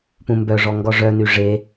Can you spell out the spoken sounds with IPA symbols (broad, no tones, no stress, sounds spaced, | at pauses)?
p ũ m b œ ʐ ɔ ŋ ɡ ɔ ʐ œ n y ʐ e